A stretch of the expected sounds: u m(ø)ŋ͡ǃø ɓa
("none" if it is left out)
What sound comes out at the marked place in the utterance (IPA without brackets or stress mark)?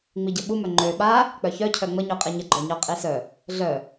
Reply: œ